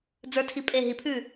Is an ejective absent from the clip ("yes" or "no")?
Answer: no